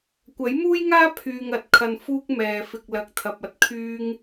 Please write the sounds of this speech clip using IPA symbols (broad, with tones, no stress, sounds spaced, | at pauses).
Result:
kʷ ɐ˨˥ j m uː˥ j ŋ aː˥ pʰ yː˧ ŋ ɐ˨ t̚ kʰ ɐ˧ n f uː˥ k̚ m ɛː˨ f ɪ˨ k̚ l ɐ˨˥ k̚ t̪ʰ ɐ˨ p̚ ɐ˧ t̚ kʰ yː˥ ŋ